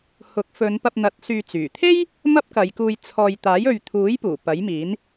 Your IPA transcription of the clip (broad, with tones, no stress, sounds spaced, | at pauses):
h ʊ˨˥ k̚ f ɵ˨˧ n p ɐ˧ p̚ n̪ ɐ˨˥ t̚ s yː˧ t͡s yː˨˩ t̪ʰ e˥ j | m ɐ˥ p̚ k ɐ˨˧ j k uː˧ j t͡sʰ ɔː˧ j t̪ aː˨˥ j ɵ˨ ɥ t̪ʰ uː˨˥ j p uː˨˩ p ɐ˨˥ j m iː˨˥ n